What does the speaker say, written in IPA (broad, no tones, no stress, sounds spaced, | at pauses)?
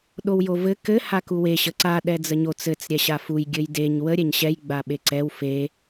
ɗ o w j o v ɘ k ɘ h a k u w e ɕ ə ǀ a ɗ ɛ d͡z ə ɲ o t͡s ɘ t͡s ɾʲ ɛ ɕ a f u j ɡʲ ɘ j d e ɲ w ə ɾʲ ɛ ɲ ɕ ɛ j ɡ͡b a ɓ e ǀ ɛ w f e